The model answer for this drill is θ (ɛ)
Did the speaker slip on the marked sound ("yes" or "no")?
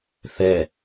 no